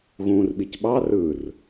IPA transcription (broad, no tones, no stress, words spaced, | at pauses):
ɣũːrɓicɓɑ rɯr